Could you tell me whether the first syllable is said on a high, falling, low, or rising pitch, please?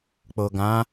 low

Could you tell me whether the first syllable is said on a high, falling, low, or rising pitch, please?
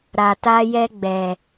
low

